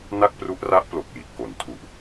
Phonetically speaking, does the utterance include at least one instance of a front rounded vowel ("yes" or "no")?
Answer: no